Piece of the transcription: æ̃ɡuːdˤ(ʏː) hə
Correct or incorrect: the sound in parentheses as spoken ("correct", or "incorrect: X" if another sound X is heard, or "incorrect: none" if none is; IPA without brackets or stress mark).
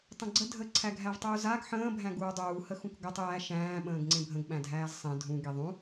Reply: incorrect: uː